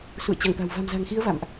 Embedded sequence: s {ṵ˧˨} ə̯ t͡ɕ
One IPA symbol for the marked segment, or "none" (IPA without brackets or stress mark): ṵ˧˨